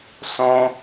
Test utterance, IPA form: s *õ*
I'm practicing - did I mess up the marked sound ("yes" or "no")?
no